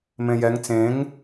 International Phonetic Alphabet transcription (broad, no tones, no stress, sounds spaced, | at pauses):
m ẽ j ɛ ŋ t͡s ẽ ŋ